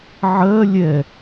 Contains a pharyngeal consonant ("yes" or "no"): yes